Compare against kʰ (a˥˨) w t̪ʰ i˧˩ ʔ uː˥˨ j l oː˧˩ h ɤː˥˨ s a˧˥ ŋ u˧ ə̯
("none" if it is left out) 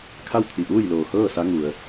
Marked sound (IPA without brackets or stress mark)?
a˥˨